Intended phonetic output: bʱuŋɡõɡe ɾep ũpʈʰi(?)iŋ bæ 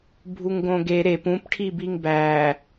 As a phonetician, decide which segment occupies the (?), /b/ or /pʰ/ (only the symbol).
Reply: b